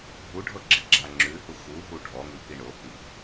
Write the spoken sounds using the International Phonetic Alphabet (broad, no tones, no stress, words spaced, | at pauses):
ɦuɖʱɤ ɡ͡ǁiɡ͡ǁaŋ͡ǁʉ huxuɦu ɖʱɔŋʉ piɳohi